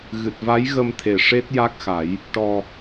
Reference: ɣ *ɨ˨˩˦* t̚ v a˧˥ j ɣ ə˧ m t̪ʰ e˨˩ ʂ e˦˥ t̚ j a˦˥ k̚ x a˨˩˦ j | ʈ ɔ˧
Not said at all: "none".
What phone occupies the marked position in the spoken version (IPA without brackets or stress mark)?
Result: ɨ˨˩